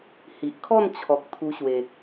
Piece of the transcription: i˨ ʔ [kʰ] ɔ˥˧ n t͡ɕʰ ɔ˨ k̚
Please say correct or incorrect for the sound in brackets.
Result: correct